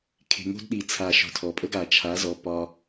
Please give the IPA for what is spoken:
kʰ e̤˨ ŋ o̤˧ d ɗ i˨ t͡sʰ a˨ ʃ ɔ̤˨ tʰ ɔ˨ pʼ ə˧ ɡ a˨ t͡ʃʰ a˨˦ z ɔ˨ p ɒ˧

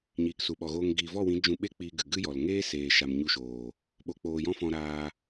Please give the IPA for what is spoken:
ɲ iː˨ k s u˨ ɓ ɔ˨ ɣ oː˧ ŋ ɡ iː˨ v ɔ˦˨ w ĩ˨˦ d͡ʒ ũ˧ ɓ e˦ k͡p iː˧ ɡ ɨ˨ ɡ ɨ˦ j ɔ˨ l ŋ eː˦ s eː˨ ʃ a˨ m ɲ u˧ ʃ oː˨ | ɓ o˨ k͡p oː˨ j ɔ̃˧ f ɔ̃˧ ɾ aː˧

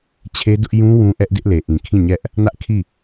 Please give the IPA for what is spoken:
t͡ɕʰ e˦ d ʊ˦ ʔ j ũ˦ w ũ˦ ʔ ɛ˦ ʔ d ɪ˦ ʔ l e˨ ʔ ĩ˨ kʰ ĩ˦˨ ɲ ɛ˦ ʔ | n ä˦ ʔ kʰ i˦˨

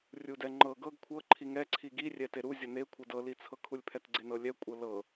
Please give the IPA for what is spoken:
rʲ u d ɛ ŋ͡ǃ ɤ ɡ ɤ ɡ kʷʰ ɤ ǃʰ i ŋ ɛ ǀʰ i ɡ i rʲ ɛ t e ɾ u zʲ ɤ n e kʷʰ ɤ d ɤ l i t͡sʰ ɤ kʰ u lʲ pʰ ɛ t ɡ͡ǀ e n ɤ lʲ ɛ kʷʼ ɤ l ɤ

